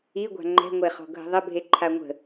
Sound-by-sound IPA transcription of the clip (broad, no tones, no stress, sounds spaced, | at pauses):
i ɡʷ a̤ ŋ͡ǃ ɛ̤ ŋʷ e χ ɔ̤ ɡʱ ə̤ ðˤ ə bʱ e ǃʰ a ŋʷ ə̤